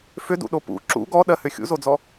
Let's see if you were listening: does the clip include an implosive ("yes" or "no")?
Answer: yes